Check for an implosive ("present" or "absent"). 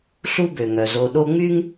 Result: present